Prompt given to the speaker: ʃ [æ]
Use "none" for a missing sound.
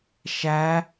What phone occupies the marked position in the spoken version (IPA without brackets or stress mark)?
æ